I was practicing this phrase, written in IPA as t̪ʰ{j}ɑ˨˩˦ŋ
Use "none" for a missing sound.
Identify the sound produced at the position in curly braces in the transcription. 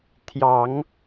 j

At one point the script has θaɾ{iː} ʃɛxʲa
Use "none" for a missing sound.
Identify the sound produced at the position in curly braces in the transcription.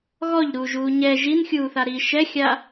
iː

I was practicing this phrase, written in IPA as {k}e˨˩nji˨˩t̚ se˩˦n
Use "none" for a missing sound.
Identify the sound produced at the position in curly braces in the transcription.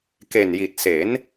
k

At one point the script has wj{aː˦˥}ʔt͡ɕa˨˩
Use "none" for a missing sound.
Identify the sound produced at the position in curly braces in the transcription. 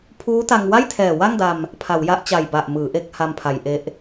a˦˥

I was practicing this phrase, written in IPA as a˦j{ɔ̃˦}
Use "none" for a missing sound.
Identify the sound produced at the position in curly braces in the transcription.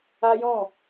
ɔ̃˦˨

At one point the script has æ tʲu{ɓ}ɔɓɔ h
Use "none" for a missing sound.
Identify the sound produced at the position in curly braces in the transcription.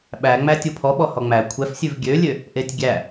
pʰ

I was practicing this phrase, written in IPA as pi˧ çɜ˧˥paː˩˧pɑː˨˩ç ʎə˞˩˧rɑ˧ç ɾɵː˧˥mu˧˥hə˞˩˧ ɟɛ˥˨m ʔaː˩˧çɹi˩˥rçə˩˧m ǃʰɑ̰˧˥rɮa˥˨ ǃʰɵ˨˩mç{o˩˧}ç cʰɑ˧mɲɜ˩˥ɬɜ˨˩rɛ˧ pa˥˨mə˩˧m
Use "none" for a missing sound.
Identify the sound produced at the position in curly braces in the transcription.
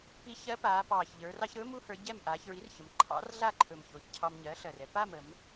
o˩˧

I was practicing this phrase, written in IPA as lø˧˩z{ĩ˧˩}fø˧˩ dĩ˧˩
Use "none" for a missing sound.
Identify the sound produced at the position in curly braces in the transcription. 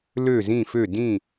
ĩ˧˩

